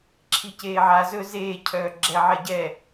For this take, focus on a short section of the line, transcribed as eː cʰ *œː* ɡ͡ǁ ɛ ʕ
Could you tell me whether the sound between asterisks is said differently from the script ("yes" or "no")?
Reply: no